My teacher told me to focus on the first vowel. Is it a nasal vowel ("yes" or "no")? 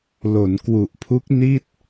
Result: no